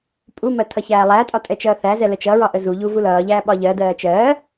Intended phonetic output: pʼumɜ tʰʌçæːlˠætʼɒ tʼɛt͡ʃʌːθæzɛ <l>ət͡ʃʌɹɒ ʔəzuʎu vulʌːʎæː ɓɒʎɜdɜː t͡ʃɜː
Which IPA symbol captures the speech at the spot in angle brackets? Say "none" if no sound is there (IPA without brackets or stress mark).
l